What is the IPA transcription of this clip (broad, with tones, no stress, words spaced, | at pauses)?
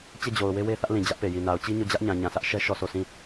t͡ɕe˦˨d͡ʑo˨ʊ̯ we˦we˦θä˦ʔlĩ˨ d͡ʑä˦ʔpe˨ji˨ na˨ʊ̯t͡ɕi˦ɲo˦˨ d͡ʑä˦ʔɲã˨ ɲã˨sä˦ʔʃɛ˦ ʃɔ˦˨so˦˨ sĩ˦˨